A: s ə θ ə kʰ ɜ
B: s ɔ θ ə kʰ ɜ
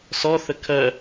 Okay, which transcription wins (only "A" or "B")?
B